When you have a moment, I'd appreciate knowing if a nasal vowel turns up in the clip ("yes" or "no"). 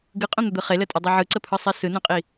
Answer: yes